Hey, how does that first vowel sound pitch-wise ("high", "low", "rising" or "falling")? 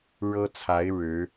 high